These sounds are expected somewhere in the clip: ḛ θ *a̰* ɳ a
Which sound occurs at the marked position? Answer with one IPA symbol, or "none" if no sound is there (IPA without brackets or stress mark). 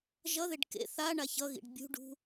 a